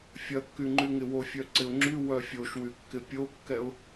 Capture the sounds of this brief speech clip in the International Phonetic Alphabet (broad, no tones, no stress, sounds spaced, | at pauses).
fʲ ɐ kː y ŋ͡ǃ y ŋ ɪ w o fʲ œ ǀ ɪ ʊ̯ ŋ͡ǁ y w œ fʲ o ʃ w y kː ɪ pʲ o kː ɛ ʊ̯